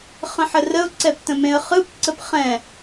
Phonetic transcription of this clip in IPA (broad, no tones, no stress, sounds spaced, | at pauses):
χ ə̃ ħ ə r ə ʊ̯ ǀ ɛ p t ə̃ m ẽ ə̯ χ ɯ p ǀ ə p χ ɛ̃